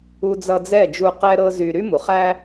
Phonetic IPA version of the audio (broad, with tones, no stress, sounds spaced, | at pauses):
u˧ d͡z ʌ˧ d͡z ɛ˦˨ d͡ʒ u˧ q ɛ˦ ɾ ɤ˦ z y˧ ɾ y˦ m u˨ χ æ˦